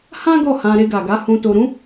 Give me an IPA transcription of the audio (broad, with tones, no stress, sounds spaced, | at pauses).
h ã˦ ɡ ɔ˦˨ h ã˧ ɾ e˧ ɡ a˨ ɡ a˨˦ h ũ˧ t o˧ ɾ ũ˦